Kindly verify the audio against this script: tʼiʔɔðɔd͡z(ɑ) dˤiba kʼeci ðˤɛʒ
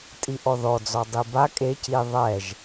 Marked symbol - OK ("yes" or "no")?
no